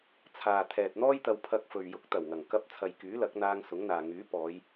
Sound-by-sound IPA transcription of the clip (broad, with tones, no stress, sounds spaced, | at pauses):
t͡sʰ aː˨ t̪ʰ ɛː˨ t̚ n̪ ɔː˥ j t̪ ɐ˧ w pʰ ɐ˧ k̚ f ɵ˨ ɥ j ʊ˨˥ k̚ t̪ ɐ˨˩ w ŋ ɐ˨˩ ŋ k ɐ˧ p̚ t͡sʰ ɐ˨ j k yː˨˥ l ɐ˨˥ k̚ n̪ aː˧ ŋ s ʊ˨˥ ŋ n̪ aː˨ ŋ yː˨˥ p ɔː˨˧ j